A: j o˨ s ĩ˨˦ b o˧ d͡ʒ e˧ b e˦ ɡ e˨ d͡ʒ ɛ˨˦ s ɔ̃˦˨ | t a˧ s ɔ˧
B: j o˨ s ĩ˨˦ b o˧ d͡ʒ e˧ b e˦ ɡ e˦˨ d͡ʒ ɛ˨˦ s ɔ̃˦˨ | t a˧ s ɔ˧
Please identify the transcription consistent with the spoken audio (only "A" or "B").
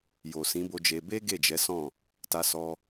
B